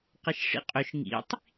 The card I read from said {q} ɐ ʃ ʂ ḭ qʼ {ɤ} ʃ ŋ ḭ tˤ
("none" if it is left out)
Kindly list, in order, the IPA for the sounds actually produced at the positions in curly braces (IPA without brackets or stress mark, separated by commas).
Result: q, ɵ